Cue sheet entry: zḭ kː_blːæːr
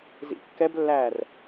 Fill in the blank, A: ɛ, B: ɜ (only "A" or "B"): A